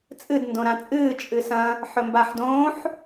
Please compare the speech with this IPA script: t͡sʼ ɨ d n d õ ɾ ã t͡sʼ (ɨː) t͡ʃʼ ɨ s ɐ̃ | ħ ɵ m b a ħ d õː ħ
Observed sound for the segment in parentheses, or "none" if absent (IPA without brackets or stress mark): ɨː